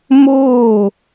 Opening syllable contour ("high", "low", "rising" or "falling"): falling